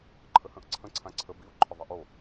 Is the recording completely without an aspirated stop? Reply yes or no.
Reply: no